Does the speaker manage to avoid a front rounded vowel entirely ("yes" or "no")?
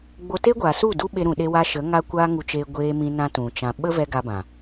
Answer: yes